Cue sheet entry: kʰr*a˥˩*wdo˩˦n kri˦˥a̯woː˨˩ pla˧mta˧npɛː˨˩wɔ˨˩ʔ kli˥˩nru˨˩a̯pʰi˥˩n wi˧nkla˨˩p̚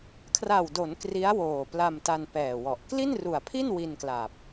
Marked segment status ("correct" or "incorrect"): incorrect